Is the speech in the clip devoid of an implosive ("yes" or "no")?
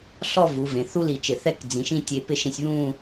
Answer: yes